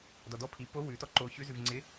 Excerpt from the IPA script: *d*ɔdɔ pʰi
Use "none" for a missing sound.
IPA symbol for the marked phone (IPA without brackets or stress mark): d